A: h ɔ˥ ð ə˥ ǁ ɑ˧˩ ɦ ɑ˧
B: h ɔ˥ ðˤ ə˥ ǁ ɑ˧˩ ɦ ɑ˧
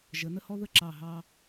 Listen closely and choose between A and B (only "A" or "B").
A